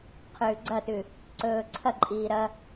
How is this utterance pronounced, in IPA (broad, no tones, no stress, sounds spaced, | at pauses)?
qʰ ʉː ɡ͡ǀ ɐ t ʉ | ǀ ɵː ǀʰ ɐ ǃʼ iː ɾ ɐ